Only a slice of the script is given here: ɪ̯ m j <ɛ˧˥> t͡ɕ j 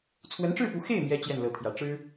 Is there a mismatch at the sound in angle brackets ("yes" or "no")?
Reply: yes